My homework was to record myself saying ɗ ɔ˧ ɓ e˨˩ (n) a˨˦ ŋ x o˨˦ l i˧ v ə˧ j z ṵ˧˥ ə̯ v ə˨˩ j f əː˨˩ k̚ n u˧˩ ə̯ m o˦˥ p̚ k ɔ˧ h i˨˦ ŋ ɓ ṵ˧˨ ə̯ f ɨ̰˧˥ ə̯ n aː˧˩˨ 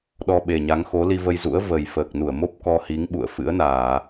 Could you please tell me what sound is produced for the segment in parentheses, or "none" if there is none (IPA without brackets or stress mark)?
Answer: ɲ